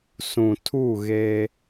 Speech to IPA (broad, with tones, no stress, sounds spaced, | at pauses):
s ũ˨ tʰ u˦˨ ɣ eː˦